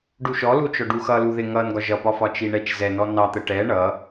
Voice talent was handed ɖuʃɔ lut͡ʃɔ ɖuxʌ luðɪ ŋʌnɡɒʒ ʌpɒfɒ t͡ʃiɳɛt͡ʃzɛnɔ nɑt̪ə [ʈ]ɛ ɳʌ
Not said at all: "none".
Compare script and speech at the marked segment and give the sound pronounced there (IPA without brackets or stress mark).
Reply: ʈ